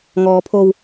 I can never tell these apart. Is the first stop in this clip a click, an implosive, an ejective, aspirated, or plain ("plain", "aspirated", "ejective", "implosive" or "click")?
aspirated